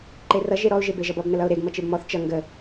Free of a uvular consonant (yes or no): yes